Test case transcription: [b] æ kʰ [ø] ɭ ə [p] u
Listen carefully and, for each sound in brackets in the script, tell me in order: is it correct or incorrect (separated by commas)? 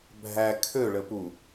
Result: incorrect, correct, correct